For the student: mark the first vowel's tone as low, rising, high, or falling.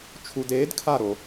low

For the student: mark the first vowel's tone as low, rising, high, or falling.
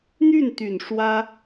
falling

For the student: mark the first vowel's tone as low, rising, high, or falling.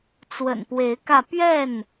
low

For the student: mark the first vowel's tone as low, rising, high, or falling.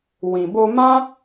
low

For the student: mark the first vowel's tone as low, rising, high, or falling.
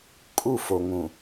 falling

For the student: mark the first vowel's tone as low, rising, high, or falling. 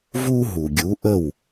high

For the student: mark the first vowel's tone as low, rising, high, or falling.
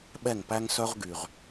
falling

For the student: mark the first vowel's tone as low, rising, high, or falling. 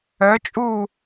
rising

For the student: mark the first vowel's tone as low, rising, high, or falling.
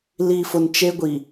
low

